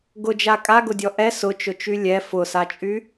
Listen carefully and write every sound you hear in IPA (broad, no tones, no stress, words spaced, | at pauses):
ɡʊd͡ʒa kʼaɡʊdʲɔ ʔɛ sʊt͡ʃʊt͡ʃy lʲɛ fʊsat͡ʃʼy